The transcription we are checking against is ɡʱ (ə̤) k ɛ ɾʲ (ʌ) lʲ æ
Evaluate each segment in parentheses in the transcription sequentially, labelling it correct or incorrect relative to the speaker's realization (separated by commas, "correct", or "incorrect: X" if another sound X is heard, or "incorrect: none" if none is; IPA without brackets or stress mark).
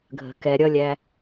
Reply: correct, correct